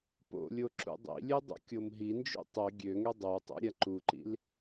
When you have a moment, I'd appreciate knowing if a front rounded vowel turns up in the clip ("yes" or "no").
yes